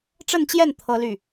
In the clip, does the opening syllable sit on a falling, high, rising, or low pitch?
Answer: falling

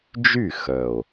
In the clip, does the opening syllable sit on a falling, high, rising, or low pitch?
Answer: falling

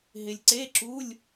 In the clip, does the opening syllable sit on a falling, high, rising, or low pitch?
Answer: low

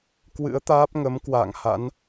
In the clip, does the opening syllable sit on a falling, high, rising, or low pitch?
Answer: rising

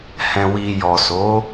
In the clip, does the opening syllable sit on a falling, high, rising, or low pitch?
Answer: low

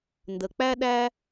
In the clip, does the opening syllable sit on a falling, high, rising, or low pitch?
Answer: low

